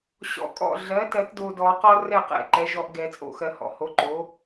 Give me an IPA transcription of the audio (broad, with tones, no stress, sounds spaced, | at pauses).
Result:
ɕ ɔ̰˨˩˦ kʼ ɔ̰˥˩ ɮ ɜ˩˥ t ɜ˨˩˦ t d o˨ d ɔ˨˩˦ q ɔ˦ r ɛ˥˩ q ɛ̰˥˩ ǃ ɛ˩˥ ʒ ɔ˨ ʔ ɡ ɛ˨˩˦ t͡sʼ o̰˥˩ x ɜ˨ h ɔ̰˨ h o˩˥ ǃ o˩˥